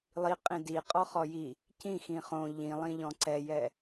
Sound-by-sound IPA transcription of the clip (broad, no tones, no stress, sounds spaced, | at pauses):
lˠ i qʼ ĩ d i qʼ ɔ χ ɔ j i | c ĩ x ĩ χ õ ʎ ĩ lˠ ĩ ʎ ɔ̃ ǀ ɛ j ɛ